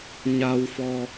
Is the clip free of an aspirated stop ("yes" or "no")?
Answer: yes